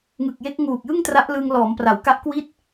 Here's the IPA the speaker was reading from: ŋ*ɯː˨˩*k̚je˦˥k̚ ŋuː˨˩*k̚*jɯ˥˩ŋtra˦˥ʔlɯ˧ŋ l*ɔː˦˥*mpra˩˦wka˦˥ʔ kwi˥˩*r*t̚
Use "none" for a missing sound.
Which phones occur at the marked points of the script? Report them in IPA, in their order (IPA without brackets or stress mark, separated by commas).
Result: ɯ˨˩, k̚, ɔː˩˦, none